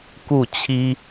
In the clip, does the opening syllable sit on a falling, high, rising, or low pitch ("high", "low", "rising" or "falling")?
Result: falling